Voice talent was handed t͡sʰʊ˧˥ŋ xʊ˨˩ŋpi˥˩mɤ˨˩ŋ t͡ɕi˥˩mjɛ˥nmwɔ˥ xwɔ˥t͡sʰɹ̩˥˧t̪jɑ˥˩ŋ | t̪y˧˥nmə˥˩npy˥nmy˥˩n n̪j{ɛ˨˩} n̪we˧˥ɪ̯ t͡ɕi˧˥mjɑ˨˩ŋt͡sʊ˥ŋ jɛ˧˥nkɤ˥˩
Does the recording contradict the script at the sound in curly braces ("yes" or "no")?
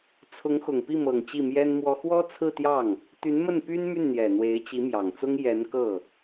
no